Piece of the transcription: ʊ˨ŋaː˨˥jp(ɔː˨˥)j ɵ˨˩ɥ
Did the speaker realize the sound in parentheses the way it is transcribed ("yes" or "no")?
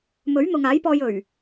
no